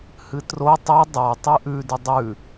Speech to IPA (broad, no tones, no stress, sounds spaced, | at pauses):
h ɨ t r o tˤ ɵ dˤ a tˤ ɨ ʔ ʉ d ʉ dˤ ʉ